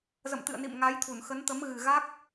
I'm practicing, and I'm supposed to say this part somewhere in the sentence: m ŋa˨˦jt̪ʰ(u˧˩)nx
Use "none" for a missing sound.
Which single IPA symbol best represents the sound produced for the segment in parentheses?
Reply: u˧˩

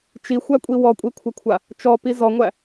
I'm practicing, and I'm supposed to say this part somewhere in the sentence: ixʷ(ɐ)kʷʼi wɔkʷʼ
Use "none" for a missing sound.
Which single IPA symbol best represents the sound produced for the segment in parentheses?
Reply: æ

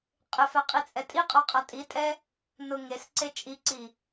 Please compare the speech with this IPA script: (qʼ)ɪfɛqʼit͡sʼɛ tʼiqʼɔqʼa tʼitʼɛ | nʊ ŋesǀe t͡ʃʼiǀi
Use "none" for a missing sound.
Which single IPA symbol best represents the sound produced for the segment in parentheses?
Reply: qʼ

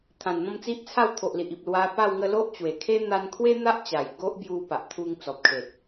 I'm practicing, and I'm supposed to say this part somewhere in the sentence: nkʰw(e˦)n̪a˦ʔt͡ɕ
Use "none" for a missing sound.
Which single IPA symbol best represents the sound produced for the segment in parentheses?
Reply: e˦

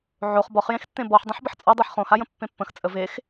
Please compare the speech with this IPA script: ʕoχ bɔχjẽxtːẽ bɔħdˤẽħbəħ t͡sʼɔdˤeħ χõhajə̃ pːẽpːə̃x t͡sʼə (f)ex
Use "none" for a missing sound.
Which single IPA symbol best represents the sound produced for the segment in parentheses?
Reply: v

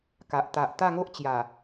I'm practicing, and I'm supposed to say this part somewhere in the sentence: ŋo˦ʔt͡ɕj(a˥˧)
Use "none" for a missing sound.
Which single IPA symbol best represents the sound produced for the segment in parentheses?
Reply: a˨˩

